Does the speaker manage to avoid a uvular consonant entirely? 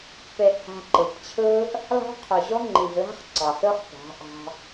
no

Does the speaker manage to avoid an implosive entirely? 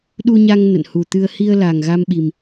no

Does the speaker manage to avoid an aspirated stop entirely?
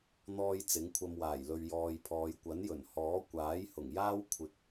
no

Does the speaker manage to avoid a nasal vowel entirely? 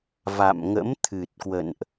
yes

